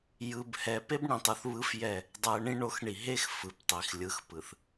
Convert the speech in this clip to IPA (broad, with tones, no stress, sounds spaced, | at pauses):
j ɯ˨ b h ɛ˨ p e˦ b ɳ ĩ˨ tˤ u˨ θ β ɯ˦ f j ɛ˦˨ | dˤ ɛ˨ ə̯ ɳ ĩ˦ ɳ o˨˦ x ɳ i˨ ɦ e˦ x f ɯ˨ p tˤ i˨ x lʲ ɯ˨ x p ɯ˨ θ